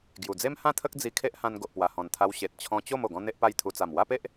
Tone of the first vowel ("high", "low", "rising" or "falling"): low